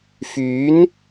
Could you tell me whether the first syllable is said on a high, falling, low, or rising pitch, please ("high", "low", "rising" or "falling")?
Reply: rising